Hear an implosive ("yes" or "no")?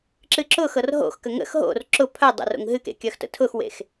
no